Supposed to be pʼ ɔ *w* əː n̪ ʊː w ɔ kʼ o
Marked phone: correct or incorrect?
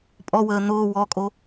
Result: correct